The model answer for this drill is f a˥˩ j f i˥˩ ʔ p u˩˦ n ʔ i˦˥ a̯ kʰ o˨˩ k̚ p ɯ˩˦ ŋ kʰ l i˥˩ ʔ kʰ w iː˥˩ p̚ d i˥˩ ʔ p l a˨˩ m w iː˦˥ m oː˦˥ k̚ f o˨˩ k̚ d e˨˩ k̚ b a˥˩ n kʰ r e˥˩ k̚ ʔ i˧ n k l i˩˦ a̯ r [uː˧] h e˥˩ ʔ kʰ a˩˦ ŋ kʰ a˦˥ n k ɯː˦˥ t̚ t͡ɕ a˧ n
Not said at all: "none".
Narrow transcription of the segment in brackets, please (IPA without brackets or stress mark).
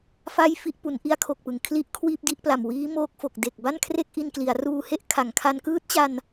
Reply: uː˧